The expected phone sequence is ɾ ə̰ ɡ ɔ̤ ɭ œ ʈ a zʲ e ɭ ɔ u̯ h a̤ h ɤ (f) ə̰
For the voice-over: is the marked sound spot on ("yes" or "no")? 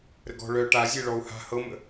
no